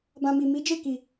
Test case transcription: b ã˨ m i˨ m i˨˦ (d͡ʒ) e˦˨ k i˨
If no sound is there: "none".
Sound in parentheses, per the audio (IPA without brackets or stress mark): d͡ʒ